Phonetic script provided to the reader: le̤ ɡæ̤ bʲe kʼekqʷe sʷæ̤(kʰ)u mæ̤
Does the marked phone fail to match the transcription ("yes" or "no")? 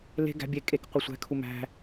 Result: no